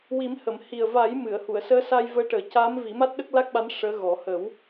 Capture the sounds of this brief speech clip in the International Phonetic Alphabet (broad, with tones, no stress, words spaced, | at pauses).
wi˨˩˦mhə˨˩˨m hi˨˩ə̯va˨˩˦j mɨ˨˩˨ə̯ hu˨˩˨ə̯səː˧˥ sa˧jvəː˧˥ʈəː˨˩ ca˧˥mvi˨˩˦ ma˦˥t̚ɗə˦˥k̚la˦˥k̚ɓa˧˥n ʂəː˧˥ɣɔ˨˩˦ hə˨˩˦w